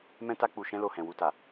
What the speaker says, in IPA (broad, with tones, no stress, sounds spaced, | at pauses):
m ɛ̃˧ t a˧ k͡p u˨ ʃ ɛ̃˧ l o˨ h ɛ̃˨ w u˨ t a˨